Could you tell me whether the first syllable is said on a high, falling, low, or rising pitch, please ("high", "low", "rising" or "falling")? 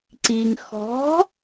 low